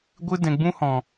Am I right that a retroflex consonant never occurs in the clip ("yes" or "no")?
yes